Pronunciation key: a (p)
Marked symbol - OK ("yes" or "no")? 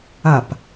yes